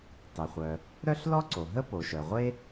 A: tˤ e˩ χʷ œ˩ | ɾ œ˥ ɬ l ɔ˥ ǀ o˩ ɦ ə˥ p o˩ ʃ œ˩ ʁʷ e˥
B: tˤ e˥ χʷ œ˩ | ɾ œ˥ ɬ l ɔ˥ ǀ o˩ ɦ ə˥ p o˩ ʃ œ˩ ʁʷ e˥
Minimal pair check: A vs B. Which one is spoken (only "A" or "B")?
A